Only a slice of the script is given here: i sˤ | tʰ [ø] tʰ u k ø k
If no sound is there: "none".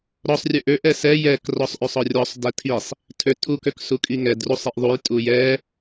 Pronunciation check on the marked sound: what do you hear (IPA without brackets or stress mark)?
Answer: ø